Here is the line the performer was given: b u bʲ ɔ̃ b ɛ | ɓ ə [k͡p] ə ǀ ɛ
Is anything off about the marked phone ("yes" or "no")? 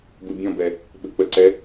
no